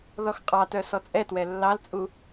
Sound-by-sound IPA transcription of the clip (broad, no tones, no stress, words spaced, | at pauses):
ðɔxqʼɑtœ sɔt͡sʼɛtwɛ lːɑlt͡sʼu